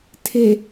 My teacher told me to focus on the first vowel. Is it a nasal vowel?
no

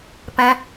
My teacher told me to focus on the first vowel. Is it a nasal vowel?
yes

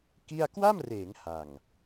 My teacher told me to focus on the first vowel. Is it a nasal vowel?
no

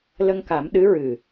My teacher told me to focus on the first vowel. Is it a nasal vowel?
no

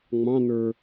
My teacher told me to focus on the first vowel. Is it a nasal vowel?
yes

